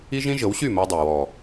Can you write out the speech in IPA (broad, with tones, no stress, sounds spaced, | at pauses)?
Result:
i˦ ʒ ĩ˦ ʒ ɤ˨˦ w ɕ y˦˨ m o˧ dˤ y˨ w ɔ˨